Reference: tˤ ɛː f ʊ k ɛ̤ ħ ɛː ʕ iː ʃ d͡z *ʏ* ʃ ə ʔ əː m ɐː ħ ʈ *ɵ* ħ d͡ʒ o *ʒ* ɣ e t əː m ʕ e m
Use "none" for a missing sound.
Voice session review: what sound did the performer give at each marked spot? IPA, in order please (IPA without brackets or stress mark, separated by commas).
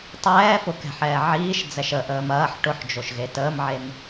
ɛ, ʊ, ʃ